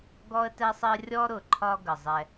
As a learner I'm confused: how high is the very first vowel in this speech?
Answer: mid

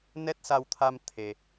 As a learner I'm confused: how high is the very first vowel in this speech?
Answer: mid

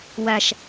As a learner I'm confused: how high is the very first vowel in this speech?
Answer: low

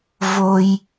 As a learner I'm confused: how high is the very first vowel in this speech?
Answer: mid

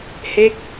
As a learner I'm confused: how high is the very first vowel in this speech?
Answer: mid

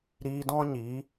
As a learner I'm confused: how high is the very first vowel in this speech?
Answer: high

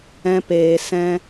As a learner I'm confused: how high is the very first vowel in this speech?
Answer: mid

